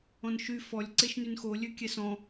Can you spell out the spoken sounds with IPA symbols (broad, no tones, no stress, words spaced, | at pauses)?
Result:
ɔ̃nʃy fɔlʲ ǀeʃnynxo lʲøkʲɛsɔ̃